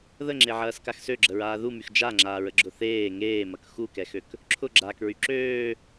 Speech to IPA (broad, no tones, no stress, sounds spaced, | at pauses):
ð ə ŋ͡ǁ e ʕ ɐː s k a x s ø ɡ͡ǁ ə ɹ aː ð u m y x d͡ʒ a ŋ͡ǁ aː ɹ ə ɡ͡ǁ ʊ θ eː ŋ eː m ɐ k x u k ɛ x ø k | ǁʰ ʊ ɡ͡ǁ aː k ɹ y ǁ øː